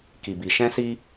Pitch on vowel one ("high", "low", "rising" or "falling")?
low